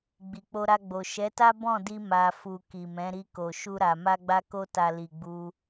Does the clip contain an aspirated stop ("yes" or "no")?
no